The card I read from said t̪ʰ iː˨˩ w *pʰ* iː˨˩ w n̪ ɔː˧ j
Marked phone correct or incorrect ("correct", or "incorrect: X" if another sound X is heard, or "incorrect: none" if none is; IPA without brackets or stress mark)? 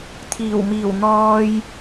incorrect: m